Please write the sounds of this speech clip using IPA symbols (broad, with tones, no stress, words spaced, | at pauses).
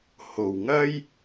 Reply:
ho˨wŋɐ˥j